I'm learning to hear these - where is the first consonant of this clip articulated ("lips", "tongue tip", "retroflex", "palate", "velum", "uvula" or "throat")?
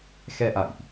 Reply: velum